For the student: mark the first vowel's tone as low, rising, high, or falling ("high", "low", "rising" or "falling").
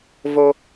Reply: high